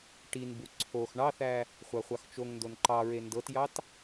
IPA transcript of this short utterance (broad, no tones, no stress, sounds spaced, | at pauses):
ʈ i n b u ǀʰ o x ɳ ɑ θ æ | χʷ ɑ χʷ ɑ x t͡ʃ o ŋ n d o n ǃ ɑ ɹ e n d ɤ t j ɑ t